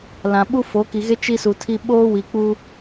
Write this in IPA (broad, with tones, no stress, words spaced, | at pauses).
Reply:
lã˨ɓu˦ fo˨˦ki˨ɣe˦ t͡ʃi˦su˨tʰi˦ ɓoː˦wi˨k͡pu˦